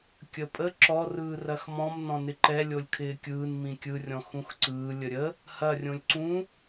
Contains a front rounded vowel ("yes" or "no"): no